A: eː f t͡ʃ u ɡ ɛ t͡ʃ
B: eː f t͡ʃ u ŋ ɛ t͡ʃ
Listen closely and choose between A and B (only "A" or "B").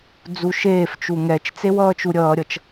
B